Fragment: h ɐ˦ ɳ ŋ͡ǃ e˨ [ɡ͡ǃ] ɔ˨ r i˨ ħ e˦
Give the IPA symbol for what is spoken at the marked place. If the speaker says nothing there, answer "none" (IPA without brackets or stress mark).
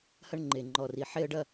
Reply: ŋ͡ǃ